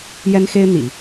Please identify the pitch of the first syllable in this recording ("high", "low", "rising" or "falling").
high